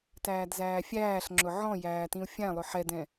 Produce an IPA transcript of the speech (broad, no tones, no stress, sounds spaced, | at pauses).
t æː d z æː fʲ æː ɬ ŋ͡ǁ ʊ ʕ ɔ̃ j æː t ĩ u̯ fʲ æ̃ lˠ ʊ ħ ɛ d ɛ̃